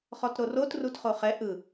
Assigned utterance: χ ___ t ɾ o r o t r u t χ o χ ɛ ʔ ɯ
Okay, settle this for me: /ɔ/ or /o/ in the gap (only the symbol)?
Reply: ɔ